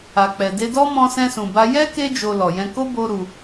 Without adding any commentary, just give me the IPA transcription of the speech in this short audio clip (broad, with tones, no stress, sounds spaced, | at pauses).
a˨ k͡p ɛ˨ d e˧ d ɔ˦ m ɔ̃˧ s ɛ̃˧ s ũ˨ b a˧ j ɛ˦ k e˦ d͡ʒ o˧ l ɔ˨ j ɛ̃˧ k o˦ b o˦ ɾ u˧